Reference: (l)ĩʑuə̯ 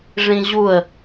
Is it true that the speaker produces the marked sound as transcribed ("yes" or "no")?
no